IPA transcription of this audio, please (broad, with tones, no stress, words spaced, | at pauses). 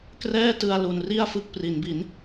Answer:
krɛː˥˩tɯ˧a̯ lu˧n ri˥˩a̯fɯ˦˥k̚pri˩˦nbi˩˦n